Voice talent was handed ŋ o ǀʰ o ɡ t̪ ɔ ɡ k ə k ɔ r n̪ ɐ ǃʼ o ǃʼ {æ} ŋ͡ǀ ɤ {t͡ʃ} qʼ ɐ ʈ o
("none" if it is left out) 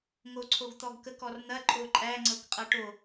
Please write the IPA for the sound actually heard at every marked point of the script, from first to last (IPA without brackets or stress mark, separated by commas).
æ, k